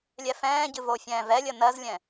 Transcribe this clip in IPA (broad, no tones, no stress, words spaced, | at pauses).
lʲɛfɛ̃ːɟɨ vofʲɛ̃ːvɛlʲə nɜzlʲɛ̃